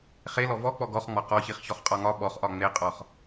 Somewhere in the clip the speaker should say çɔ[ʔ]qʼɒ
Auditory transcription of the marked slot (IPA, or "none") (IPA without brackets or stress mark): χ